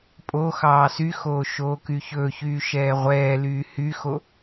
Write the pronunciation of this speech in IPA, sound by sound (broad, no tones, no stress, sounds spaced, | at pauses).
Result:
pʼ o x ɑː s y x oː ʃ oː k y ç ɵː ç yː ʃ ɛː ʁʷ ɛː l yː h y x o